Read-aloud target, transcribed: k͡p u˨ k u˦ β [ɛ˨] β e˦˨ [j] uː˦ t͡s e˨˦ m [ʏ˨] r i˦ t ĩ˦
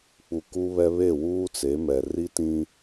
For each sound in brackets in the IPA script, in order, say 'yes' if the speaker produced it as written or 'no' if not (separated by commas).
no, no, no